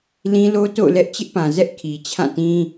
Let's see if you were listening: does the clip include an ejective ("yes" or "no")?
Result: no